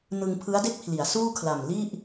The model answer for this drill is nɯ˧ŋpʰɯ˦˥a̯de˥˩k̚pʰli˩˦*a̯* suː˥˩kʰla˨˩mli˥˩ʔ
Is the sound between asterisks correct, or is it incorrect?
correct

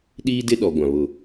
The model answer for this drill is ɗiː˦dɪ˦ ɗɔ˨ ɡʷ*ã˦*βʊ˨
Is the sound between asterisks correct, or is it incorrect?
incorrect: ã˨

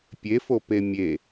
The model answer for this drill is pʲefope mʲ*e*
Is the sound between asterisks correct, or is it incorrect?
correct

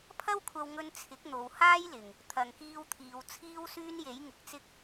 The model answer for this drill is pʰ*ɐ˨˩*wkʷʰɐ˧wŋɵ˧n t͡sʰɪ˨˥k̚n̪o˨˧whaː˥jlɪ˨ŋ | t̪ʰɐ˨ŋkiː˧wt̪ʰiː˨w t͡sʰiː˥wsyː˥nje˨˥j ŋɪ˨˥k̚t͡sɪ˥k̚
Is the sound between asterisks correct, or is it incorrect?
incorrect: ɐ˥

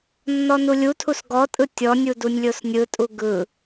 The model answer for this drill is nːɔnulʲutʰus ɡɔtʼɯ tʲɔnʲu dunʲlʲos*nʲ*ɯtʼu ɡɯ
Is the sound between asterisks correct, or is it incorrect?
correct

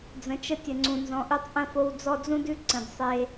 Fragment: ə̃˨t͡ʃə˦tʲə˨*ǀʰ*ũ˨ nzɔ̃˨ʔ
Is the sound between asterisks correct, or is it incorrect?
incorrect: ŋ͡ǀ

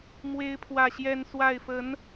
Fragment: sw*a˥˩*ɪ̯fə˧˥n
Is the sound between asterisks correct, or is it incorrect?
correct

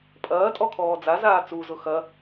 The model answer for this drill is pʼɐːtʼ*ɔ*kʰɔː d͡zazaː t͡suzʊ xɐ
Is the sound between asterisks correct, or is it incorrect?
correct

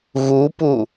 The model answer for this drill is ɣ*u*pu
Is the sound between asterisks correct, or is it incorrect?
correct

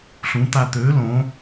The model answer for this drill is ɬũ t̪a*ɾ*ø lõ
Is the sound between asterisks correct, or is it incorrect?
incorrect: t̪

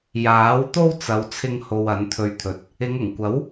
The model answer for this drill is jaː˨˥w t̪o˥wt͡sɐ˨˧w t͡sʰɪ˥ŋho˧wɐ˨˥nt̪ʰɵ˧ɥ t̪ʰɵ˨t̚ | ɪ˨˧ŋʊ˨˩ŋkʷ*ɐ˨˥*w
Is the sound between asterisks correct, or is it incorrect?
correct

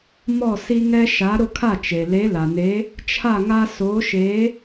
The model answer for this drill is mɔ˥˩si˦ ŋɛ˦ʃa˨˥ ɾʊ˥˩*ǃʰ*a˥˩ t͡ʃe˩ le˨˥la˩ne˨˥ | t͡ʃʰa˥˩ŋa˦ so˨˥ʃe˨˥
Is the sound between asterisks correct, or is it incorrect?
incorrect: kʰ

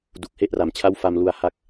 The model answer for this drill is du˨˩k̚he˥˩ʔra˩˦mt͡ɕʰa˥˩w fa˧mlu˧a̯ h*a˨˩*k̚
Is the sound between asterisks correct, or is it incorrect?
incorrect: a˦˥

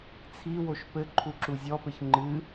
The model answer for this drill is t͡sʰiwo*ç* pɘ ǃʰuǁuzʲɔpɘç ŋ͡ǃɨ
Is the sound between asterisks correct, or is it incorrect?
incorrect: ʃ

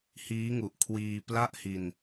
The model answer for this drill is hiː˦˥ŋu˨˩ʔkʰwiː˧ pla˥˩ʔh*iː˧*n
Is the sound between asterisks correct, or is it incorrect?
incorrect: i˧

